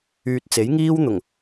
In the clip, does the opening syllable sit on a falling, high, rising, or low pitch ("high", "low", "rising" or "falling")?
low